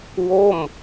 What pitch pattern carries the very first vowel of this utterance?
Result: falling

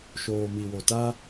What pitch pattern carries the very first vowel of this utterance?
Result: low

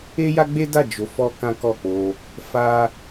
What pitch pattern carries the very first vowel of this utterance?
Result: high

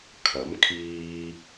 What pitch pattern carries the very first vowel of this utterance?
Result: rising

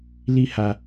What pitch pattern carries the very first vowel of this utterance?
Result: high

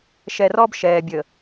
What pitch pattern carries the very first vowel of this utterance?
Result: low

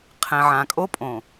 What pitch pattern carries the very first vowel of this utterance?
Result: low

